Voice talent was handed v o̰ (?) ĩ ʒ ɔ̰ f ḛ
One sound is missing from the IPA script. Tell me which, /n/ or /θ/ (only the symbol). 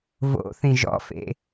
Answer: θ